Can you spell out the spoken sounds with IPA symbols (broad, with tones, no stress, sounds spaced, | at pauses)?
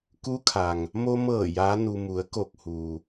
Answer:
k u˧˥ kʰ a˩ ŋ | m o˧ m ɤː˧˩ j aː˧˥ n u˧ m u˩˧ ə̯ k o˧˩ k̚ h uː˩